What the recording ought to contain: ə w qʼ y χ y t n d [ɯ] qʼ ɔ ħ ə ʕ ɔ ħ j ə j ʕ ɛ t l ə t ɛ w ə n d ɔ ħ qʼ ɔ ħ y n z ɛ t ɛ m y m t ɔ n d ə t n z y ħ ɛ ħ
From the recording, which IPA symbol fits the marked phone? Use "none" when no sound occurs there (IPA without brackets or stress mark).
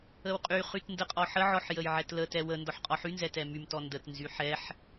ə